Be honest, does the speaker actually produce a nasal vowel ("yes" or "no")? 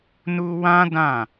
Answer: yes